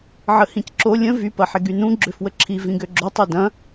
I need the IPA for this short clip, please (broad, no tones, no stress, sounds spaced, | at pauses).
ʕ ə h ĩ c ǁ o lʲ ə̃ v y p ɐ ħ ɪ ɡ y n ũ ɡ͡ǁ ø f w ə ǁʰ i v ĩ ɡ ø ɡ͡ǁ o tˤ o d ɐ̃